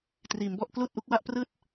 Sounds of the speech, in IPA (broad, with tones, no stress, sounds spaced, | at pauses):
t r iː˩˦ m b ɔ˥˩ ʔ k l uː˥˩ t̚ ʔ u˥˩ k̚ w a˥˩ ʔ p r ɯː˥˩ t̚